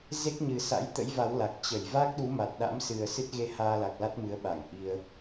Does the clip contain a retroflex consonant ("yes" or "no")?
no